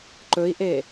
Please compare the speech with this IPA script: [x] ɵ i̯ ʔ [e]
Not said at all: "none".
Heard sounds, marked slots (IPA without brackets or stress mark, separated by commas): ǃ, e